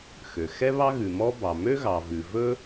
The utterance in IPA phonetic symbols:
x ø˩ x ɛ˥ β ɑ˥ ɣ ʉ˩ m ɔ˥ b ɑ˩ m ø˥ ɣ ɑ˩ v ʉ˩ v ɵ˥

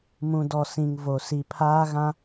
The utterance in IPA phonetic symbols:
m ũ˨ d ɔ˨ s ĩ˨ ŋ v o˨ s i˨ pʰ aː˦ ɣ ã˦

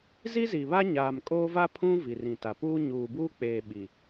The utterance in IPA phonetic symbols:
z i˦ z i˨ β a˦ ɲ aː˨ m kʼ oː˦ v a˦ pʰ ũ˦ v i˨ r ĩ˨ t a˨ p uː˦ ɲ uː˨ b uː˦ k͡p eː˨ ɓ i˨

